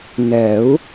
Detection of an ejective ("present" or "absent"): absent